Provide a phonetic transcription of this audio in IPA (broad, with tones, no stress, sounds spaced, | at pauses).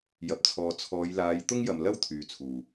j ɐ˨ p̚ t͡sʰ ɔː˨ t͡sʰ ɔː˨˧ j l aː˨˧ j t̪ ʊ˥ ŋ j ɐ˨ m l ɐ˥ w t̪ʰ yː˨ t͡sʰ uː˨˩